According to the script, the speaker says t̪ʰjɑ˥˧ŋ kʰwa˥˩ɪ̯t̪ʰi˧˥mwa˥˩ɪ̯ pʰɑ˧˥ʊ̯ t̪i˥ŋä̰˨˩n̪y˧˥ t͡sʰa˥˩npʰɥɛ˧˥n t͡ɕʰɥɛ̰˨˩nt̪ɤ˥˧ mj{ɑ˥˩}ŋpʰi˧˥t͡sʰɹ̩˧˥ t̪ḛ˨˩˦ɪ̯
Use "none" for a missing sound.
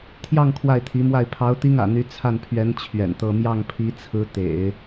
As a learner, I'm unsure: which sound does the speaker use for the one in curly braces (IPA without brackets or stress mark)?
ɑ˥˩